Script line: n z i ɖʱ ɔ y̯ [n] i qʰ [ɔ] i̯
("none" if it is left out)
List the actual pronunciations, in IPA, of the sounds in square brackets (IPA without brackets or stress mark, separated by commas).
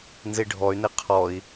n, ɔ